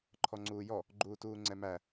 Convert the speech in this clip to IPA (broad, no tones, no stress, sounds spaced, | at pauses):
ǃʰ ɔ ŋ͡ǀ uː j ɔ | ɡ͡ǃ uː t uː ŋ͡ǀ ɛ m æ